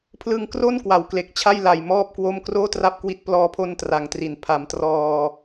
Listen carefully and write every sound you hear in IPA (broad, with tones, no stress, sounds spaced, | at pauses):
pʰ l ɯ˧ ŋ k r o˥˩ n k w a˩˦ w k l e˨˩ k̚ t͡ɕʰ a˥˩ j l a˨˩ j m ɔː˥˩ p̚ k w o˥˩ m k r oː˥˩ t r a˥˩ p̚ k w i˦˥ t̚ p l ɔː˧ pʰ o˧ n t r a˨˩ ŋ t r i˩˦ n pʰ a˩˦ m t r ɔː˧